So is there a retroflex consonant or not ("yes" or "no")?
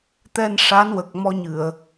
yes